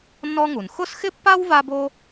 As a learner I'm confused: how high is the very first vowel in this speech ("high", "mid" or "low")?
mid